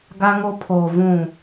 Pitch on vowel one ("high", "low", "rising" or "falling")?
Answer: high